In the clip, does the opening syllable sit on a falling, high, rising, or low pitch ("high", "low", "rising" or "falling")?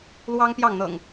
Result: high